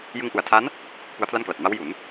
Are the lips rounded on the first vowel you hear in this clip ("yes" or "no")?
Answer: no